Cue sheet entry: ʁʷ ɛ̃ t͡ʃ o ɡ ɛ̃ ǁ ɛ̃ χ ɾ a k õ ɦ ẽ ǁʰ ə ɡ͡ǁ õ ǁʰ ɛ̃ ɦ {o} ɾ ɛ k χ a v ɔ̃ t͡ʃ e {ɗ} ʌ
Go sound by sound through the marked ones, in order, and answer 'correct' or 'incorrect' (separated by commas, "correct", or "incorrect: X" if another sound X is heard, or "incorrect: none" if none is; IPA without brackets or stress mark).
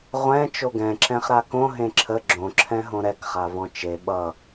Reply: incorrect: õ, incorrect: ɓ